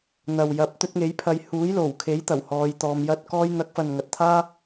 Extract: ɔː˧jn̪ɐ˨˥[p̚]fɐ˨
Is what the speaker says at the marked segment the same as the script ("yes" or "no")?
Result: no